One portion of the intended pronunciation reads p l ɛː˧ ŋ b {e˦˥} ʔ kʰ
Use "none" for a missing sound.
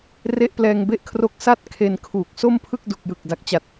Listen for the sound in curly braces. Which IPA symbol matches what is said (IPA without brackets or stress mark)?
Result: e˦˥